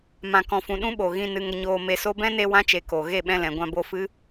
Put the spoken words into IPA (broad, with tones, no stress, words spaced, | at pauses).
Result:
mã˨kɔ̃˨fũ˨ ɗũ˦ɓo˨ɣĩ˧ nɨ˧ŋə˧ɲoː˧ me˨so˧bɛ̃˦ne˧ wã˧t͡ʃe˨ ko˨ ɣe˦˨ɓɛ̃˧lɛ̃˨ ɡʷã˧bo˧fɨ˦